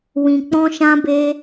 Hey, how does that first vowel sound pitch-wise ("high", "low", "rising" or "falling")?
low